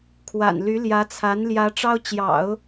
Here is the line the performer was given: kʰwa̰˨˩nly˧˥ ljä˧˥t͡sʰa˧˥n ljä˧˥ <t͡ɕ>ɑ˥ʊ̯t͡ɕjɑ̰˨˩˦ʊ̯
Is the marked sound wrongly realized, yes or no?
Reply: yes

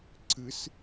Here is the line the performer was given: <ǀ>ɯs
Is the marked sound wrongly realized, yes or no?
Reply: no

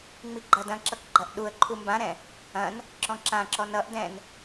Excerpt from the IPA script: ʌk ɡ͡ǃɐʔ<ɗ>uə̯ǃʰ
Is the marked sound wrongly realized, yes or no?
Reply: no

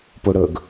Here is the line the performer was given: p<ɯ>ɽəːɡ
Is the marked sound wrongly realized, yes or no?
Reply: yes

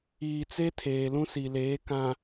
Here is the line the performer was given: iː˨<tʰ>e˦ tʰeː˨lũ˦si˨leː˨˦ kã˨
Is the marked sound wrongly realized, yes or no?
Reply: yes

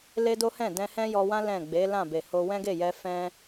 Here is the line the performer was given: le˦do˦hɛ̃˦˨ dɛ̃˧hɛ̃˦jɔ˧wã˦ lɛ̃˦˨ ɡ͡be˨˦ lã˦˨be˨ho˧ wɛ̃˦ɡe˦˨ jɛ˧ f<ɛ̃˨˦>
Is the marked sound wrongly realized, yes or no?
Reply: yes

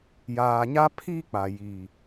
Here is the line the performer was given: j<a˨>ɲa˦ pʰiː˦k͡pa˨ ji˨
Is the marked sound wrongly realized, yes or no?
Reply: yes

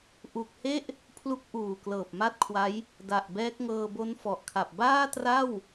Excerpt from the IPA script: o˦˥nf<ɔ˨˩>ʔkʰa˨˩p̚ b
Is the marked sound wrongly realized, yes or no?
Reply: no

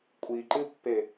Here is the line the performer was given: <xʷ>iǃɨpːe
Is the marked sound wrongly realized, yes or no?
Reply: yes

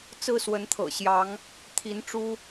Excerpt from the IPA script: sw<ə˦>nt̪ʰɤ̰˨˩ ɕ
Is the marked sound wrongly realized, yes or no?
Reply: yes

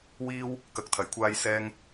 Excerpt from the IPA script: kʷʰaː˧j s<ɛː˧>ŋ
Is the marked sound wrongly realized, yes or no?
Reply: no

